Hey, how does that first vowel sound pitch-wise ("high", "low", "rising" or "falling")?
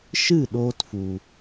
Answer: falling